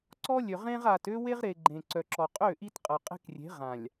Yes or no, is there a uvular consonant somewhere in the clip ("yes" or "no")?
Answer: yes